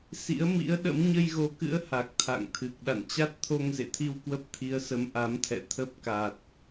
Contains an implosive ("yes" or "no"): yes